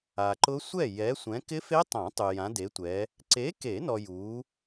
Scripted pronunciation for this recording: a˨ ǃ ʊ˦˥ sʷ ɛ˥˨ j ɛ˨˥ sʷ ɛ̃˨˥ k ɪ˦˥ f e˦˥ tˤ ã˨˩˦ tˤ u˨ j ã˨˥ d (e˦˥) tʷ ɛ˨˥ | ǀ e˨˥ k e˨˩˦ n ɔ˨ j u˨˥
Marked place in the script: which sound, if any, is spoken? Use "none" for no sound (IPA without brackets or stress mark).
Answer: e˨˥